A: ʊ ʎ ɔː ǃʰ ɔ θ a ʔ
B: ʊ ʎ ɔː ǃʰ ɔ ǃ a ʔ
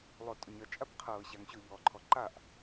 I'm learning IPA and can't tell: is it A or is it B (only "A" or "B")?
B